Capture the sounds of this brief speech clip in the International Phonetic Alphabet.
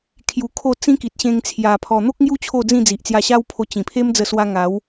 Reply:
kʰ j u˧ kʰ o˥˧ t͡s ĩ˦ k i˨ t̚ ɕ ẽ˧ ŋ t͡sʰ j a˧ pʰ ɔ˧ n̪ o˦ k̚ ŋ j u˦ t͡ɕʰ o˥˧ d͡z ĩ˥˧ d͡z i˨ ʔ t͡s j a˧ ɕ a˦ w pʰ o˧ t͡ɕ ĩ˨˩ pʰ e˦ m d͡z ə˧ s w a˧ ŋ a˨˦ w

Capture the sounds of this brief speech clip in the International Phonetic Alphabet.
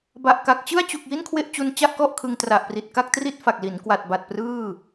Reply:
b a˨˩ ʔ k a˨˩ k̚ t͡ɕ ɯ˥˩ a̯ t͡ɕ u˨˩ k̚ j i˥˩ n kʰ w e˥˩ ʔ t͡ɕ u˧ n t͡ɕ a˥˩ ʔ k ɔ˥˩ ʔ kʰ ɯ˧ ŋ t r a˨˩ ʔ p r i˨˩ t̚ k a˥˩ k̚ t r i˥˩ t̚ f a˨˩ k̚ l i˩˦ n k w a˨˩ t̚ b a˨˩ t̚ p r ɯː˥˩

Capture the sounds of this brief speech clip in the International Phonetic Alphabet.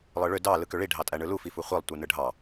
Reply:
lˠ ɯ ɭ ø d ɑ l ɯ k ø ɭ i ɖʱ ɑ tʼ æ ɳ ɯ l u f i f u χʷ i lˠ tʷ ɯ n ɯ ɖʱ ɑ

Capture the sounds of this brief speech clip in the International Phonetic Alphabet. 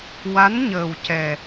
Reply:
w a˧˥ n ɲ əː˨˩ w c ɛ˨˩

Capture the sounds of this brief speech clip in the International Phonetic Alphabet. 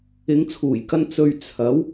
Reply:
ɪ˨˧ ŋ t͡sʰ uː˨˩ j k ɐ˧ n t͡s ɵ˨ ɥ t͡sʰ ɐ˨˥ w

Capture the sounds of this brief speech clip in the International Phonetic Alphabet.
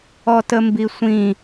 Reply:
ɔ t ə m b i sʷ ĩ

